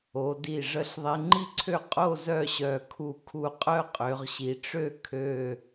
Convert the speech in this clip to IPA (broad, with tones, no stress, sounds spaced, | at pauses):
o˩˧ d i˧˩ ʐ ə˧ ɬ ðˤ e˧ ŋ͡ǃ i˥ ǀʰ ø˥˧ qʼ o˥˧ z œ˥˧ ɕ œ˧˩ kʰ u˧˩ kʰ u˧ qʼ œ˥ qʼ ø˩˧ ʁ ɕ i˩˧ ʈ͡ʂ ø˥˧ kʰ ø˧˩